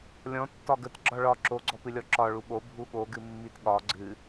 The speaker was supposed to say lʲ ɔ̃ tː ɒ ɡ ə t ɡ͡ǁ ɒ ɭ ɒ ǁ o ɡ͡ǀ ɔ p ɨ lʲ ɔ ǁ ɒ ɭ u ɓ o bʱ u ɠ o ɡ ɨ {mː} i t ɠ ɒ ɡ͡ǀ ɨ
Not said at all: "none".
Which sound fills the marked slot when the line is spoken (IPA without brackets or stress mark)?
mː